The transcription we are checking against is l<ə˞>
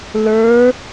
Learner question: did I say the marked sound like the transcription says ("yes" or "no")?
yes